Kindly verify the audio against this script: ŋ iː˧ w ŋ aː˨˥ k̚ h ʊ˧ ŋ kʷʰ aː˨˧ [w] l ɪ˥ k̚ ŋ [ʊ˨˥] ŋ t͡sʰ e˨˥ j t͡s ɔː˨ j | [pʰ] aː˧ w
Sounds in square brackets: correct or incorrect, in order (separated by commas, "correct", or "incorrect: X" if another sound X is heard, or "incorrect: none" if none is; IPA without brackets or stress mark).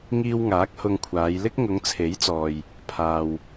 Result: incorrect: j, incorrect: ʊ˨˧, correct